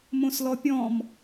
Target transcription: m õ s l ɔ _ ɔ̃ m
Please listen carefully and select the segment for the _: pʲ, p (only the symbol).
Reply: pʲ